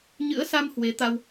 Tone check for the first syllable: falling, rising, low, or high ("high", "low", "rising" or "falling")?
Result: rising